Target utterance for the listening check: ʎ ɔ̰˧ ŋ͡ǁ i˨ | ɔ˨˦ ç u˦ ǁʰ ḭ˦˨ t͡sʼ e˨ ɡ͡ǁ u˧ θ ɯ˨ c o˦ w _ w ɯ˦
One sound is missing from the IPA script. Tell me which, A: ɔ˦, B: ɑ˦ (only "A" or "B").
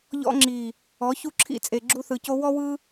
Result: A